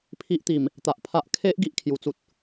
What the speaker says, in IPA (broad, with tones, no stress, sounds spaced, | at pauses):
pʰ i˦ ʔ t̪ i˨˩ m | t̪ a˨ ʔ pʰ a˦ ʔ kʰ e˦ ʔ ɡ i˦ ʔ kʰ j u˨˩ t͡s u˦ t̚